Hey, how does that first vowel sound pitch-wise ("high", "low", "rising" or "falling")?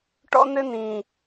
high